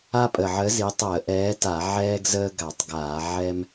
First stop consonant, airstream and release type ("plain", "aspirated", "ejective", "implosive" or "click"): ejective